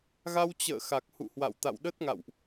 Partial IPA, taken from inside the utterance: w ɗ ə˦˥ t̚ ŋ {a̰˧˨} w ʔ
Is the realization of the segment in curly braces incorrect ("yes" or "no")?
no